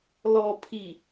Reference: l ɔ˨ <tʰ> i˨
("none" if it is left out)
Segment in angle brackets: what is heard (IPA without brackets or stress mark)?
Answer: pʰ